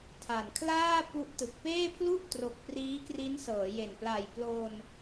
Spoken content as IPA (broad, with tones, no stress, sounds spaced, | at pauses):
tʰ a˨˩ n kʰ l aː˥˩ p u˦˥ ʔ t ɯ˨˩ k̚ p eː˥˩ pʰ l u˥˩ ʔ t r o˨˩ k̚ p r iː˦˥ k r i˦˥ n s ɤː˩˦ j e˨˩ n p l a˨˩ j p l oː˧ n